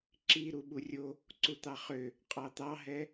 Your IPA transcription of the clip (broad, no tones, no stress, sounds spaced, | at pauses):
ǁ i ɾ u ɓ u rʲ o | ǀ u t̪ ɑ χ ø | qʼ ɑ t̪ ɑ ɦ ɛ